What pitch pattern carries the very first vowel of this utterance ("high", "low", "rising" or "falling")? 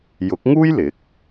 rising